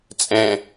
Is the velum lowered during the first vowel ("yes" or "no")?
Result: yes